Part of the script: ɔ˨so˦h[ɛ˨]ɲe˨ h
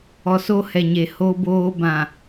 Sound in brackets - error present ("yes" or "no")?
no